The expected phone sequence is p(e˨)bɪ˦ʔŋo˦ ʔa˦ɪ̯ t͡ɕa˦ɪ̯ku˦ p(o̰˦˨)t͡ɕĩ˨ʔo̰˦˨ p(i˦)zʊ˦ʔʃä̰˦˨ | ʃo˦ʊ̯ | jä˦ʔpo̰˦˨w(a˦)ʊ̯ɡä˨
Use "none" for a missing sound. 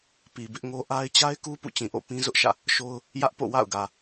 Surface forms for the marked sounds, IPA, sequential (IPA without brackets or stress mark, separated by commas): i˨, ṵ˦˨, ĩ˦, a̰˦˨